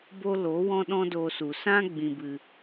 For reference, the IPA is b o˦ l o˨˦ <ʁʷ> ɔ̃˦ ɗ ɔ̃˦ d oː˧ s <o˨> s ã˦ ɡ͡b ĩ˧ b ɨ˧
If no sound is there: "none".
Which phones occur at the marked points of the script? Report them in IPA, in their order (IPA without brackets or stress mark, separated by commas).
w, u˨